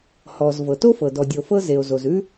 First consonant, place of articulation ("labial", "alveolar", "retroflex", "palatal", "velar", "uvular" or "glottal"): glottal